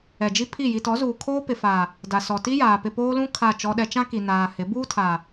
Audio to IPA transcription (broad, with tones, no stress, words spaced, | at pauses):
ɛ˨d͡ʒi˦ pʰi˦˨ ji˨tɔ˨˦zuː˨ kʰoː˦pɪ˨fa˨ | da˨sɔ˨ti˦jaː˨ pɪ˨poː˦lũ˦ kʰa˦˨ t͡ʃɔ˦ɗɛ˦ t͡ʃã˦ ki˨naː˨ hɪ˨˦ buː˦tʰa˨